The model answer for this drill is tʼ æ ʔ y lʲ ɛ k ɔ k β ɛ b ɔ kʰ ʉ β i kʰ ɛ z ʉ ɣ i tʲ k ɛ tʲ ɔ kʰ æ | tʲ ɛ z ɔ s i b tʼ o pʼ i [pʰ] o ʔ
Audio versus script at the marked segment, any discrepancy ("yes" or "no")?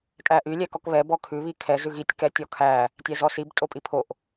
no